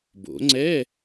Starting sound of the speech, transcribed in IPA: b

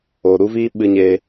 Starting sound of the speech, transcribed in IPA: oː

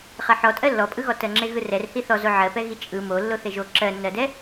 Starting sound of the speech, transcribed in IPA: χ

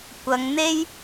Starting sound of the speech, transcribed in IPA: kʷ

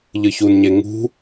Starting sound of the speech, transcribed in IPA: ʎ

